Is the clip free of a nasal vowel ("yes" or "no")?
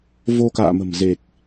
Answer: yes